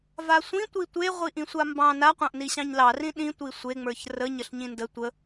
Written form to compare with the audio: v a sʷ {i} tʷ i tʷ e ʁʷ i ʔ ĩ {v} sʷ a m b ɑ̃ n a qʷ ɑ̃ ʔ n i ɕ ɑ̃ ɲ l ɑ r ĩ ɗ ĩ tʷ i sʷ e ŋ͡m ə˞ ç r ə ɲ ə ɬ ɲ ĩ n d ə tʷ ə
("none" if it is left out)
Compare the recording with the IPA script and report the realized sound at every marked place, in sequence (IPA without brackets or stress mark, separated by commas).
ĩ, none